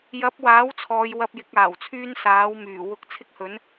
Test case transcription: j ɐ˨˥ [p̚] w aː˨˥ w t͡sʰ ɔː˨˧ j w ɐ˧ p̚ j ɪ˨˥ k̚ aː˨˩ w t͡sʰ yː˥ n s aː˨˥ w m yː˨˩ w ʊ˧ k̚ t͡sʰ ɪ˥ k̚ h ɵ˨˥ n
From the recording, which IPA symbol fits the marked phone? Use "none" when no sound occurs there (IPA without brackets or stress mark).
p̚